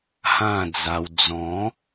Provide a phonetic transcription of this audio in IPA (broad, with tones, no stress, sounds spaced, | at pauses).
h ã˥˧ d͡z a˧ w d͡z ɔ̃˨˦